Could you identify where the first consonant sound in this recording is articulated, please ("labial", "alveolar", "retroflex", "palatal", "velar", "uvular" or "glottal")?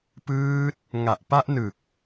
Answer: labial